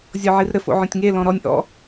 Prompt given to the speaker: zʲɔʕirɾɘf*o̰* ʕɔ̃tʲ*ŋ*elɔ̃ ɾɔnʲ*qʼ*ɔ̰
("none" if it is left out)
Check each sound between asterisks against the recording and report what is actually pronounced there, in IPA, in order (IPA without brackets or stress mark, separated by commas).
o̰, ŋ, ʔ